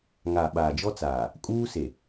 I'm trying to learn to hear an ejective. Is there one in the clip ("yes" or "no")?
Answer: yes